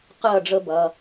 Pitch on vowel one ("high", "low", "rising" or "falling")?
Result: falling